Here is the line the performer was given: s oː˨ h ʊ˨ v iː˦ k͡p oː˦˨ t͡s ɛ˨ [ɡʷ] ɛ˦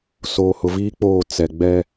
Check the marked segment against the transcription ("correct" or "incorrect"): incorrect